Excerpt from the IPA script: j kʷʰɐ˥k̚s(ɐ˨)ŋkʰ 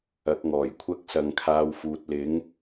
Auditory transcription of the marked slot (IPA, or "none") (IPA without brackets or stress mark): ɐ˨